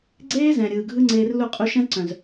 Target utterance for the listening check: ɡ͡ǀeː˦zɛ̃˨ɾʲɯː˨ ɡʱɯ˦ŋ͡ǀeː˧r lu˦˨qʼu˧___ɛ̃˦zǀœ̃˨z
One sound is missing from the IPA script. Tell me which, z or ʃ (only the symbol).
ʃ